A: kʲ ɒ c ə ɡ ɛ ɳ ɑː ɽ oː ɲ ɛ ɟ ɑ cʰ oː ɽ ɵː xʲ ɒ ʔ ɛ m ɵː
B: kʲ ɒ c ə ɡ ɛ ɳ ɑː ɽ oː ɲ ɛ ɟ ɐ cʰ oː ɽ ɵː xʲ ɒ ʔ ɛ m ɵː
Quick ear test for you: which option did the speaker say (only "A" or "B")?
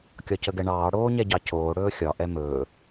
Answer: A